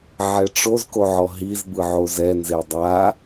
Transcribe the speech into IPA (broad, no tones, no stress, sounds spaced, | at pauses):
ʕ ɛ ʈ͡ʂ o z k o ʕ ɔ ɦ i z b ɯ ʕ o z ɛ n z e dˤ a